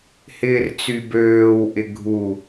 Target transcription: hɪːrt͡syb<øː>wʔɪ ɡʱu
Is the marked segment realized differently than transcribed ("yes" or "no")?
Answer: no